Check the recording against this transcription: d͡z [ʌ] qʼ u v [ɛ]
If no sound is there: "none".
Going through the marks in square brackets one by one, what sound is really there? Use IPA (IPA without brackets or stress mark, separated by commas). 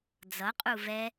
ʌ, ɛ